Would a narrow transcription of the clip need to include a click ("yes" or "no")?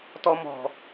no